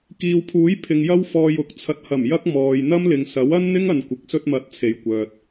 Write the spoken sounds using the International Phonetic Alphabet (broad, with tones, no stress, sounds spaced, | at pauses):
k iː˨ w pʰ uː˨˥ j pʰ ɪ˨ ŋ j ɐ˥ w f ɔː˧ j ʊ˨˥ k̚ t͡sʰ ɐ˨ t̚ h ɐ˨˩ m j ɐ˥ k̚ m ɔː˨ j n̪ ɐ˥ m l ɪ˨ ŋ s ɐ˨˥ w ɐ˥ n n̪ ɪ˥ ŋ ɐ˨ n kʷ ɪ˨ k̚ s ɵ˧ t̚ m ɐ˨˥ t̚ t͡sʰ e˨˧ j kʷ œː˨ t̚